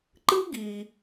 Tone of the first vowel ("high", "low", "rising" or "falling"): high